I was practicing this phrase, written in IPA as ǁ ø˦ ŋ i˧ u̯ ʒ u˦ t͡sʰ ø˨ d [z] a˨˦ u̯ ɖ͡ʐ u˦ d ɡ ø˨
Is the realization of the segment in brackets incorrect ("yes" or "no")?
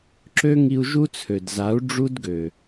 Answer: no